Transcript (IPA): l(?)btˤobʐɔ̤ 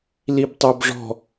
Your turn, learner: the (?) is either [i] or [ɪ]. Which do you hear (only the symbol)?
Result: i